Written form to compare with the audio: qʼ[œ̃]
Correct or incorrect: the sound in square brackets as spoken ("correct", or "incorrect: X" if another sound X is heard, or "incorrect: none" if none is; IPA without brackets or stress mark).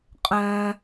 correct